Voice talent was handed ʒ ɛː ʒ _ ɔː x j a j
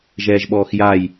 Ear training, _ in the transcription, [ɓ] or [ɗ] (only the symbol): ɓ